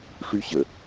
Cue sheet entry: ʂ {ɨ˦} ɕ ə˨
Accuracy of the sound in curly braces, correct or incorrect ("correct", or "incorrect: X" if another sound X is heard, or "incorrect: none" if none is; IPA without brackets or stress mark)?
incorrect: y˦